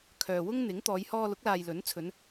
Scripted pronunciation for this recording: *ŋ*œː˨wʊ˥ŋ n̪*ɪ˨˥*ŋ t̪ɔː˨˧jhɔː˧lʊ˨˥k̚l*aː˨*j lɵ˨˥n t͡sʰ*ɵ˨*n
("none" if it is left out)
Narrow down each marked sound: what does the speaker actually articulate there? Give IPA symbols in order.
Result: kʰ, ɪ˨˥, aː˨, ɵ˨˧

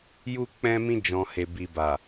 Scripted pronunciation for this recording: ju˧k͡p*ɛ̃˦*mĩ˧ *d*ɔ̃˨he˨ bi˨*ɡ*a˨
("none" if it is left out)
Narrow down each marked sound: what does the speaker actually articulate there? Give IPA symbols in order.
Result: ɛ̃˧, d͡ʒ, b

